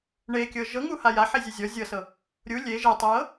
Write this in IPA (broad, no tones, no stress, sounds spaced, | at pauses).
ɳ e kʲ ɤ ʒ ɤ ŋ u h a j a ħ i zʲ e zʲ ɔ zʲ ɤ s ɤ | ɾʲ u lʲ e ʒ e tˤ i j ɤ